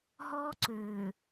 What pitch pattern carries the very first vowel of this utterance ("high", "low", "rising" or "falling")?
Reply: high